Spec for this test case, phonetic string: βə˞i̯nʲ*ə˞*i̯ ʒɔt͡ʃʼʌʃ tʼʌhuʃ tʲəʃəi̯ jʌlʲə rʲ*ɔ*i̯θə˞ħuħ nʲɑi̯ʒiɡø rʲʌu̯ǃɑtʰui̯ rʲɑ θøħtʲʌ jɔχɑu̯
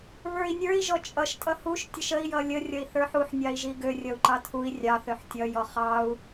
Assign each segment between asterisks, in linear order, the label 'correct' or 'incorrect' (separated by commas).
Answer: correct, incorrect